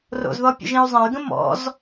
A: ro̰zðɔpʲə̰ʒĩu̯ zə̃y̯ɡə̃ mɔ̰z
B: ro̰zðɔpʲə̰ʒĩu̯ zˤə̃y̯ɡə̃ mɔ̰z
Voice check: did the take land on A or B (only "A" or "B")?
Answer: B